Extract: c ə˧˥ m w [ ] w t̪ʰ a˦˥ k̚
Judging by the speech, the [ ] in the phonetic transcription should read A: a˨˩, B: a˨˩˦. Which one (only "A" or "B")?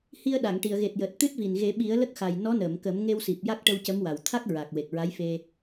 A